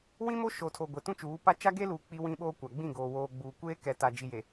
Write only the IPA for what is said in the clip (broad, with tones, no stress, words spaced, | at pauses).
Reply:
wĩ˦mo˦ʃo˨tʰo˨ ɡʷe˨tũ˦t͡ʃuː˨˦pa˦ t͡ʃa˦ɡe˦luː˨ k͡pi˦wĩ˦ɓoː˦kʷa˨ ɡ͡bĩ˦˨ɡoː˨woː˨ ɡ͡buː˨ kʷeː˦kɛ˨ta˨ d͡ʒi˨je˨